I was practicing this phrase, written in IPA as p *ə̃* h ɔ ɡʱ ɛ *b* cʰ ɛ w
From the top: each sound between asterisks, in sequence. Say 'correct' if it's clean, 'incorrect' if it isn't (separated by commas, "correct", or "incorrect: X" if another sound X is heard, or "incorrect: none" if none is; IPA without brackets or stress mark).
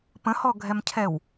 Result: correct, incorrect: m